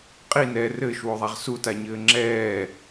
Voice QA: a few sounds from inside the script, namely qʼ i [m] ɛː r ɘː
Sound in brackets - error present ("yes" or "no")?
yes